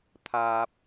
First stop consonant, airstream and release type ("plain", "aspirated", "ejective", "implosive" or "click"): aspirated